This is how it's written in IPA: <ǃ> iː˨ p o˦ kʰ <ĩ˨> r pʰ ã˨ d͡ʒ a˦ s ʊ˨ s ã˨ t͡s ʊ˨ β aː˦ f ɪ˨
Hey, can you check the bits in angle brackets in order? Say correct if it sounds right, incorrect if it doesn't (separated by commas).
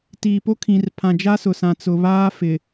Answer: incorrect, correct